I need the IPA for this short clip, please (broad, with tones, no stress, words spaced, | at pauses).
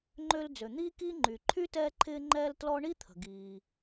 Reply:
ŋ͡ǃø˦l d͡zø˩n̪iː˥kiː˥ ŋ͡ǃy˩ ǃʰy˥tɛː˦ǃʰɪː˦ŋ͡ǃɛː˦l tlɔ˦ɳi˥ t̪ʰə̤˩ ɡiː˩